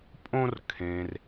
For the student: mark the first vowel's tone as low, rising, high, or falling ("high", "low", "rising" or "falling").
high